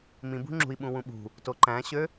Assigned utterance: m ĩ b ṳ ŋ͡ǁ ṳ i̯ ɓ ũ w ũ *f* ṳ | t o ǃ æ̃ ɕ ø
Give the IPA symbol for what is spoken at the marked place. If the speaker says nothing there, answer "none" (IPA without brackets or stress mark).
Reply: ɓ